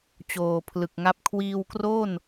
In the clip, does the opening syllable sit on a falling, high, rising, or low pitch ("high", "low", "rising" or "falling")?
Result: low